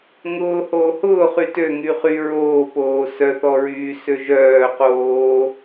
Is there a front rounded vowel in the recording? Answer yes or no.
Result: yes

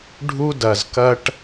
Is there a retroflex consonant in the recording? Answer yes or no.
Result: yes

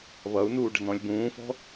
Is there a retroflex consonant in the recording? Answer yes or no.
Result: yes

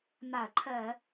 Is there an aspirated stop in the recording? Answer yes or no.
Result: yes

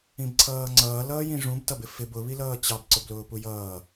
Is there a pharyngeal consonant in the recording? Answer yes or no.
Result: no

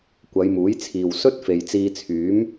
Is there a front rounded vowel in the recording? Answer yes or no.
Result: yes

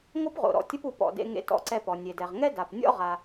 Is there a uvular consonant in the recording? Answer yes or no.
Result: yes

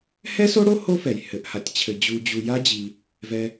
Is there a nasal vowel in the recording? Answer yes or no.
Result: no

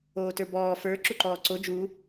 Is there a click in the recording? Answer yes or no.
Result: yes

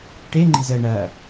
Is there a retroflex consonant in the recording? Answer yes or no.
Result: yes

